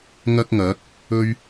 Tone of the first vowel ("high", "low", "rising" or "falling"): high